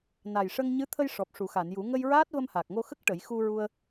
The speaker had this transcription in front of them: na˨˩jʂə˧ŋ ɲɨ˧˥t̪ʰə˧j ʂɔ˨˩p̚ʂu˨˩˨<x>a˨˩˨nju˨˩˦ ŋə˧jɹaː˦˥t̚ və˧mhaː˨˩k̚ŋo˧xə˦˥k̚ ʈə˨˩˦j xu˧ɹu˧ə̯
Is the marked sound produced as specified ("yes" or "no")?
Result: yes